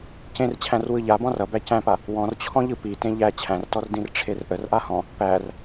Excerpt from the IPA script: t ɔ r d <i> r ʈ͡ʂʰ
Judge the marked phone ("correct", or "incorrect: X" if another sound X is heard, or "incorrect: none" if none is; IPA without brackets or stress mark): incorrect: ĩ